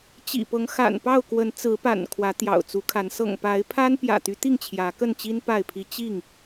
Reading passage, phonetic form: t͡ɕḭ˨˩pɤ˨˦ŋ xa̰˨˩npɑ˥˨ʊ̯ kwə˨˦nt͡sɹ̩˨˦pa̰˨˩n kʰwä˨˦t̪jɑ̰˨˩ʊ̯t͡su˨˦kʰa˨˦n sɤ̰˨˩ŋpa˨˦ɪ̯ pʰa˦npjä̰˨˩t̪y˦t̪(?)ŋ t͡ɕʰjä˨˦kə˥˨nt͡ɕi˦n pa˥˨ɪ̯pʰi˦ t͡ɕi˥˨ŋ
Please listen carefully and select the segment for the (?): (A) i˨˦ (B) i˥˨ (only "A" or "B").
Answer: B